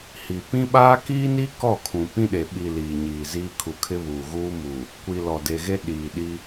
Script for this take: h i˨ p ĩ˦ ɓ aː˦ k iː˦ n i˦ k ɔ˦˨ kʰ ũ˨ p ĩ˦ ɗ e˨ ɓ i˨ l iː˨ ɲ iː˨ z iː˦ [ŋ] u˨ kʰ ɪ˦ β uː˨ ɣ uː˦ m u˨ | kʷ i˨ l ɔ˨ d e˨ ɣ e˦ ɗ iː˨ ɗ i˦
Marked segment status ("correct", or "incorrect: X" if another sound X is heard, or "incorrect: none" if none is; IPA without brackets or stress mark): incorrect: kʰ